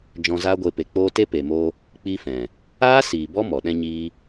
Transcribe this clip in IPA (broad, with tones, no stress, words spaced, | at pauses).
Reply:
d͡ʒɔ̃˧zaː˦ɡʷe˧ pe˨k͡poː˧ te˦pe˨moː˧ | k͡pi˧fɛ̃˨ | aː˦siː˨ bɔ˦mɔ˨ɗɛ̃˧ɲiː˧